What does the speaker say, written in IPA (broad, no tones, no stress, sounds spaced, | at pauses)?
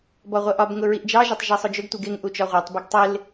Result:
b ɔ ʁʷ ɛ ʔ ɒ b ŋ ʊ ɹ i ʔ d͡ʒ ɑ ʒ ɒ tˤ ʒ ɑ sˤ ʊ d͡ʒ ʊ ɡ tʷ i ɡ ɪ ŋ ʔ u t͡ʃ ɒ ʁʷ ɜ tˤ b ɪ ɡ tˤ ɪ l